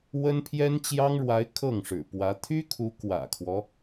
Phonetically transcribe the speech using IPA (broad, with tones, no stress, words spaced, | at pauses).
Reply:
wə˥npʰjɛ˥nt͡ɕjɑ˥ŋɻwa˧˥ɪ̯ kʰɤ˥˩ŋʂɻ̩˨˩pwä˧˥ t̪ʰy˥kʰu˧˥ kwä̰˨˩kʰwɔ˦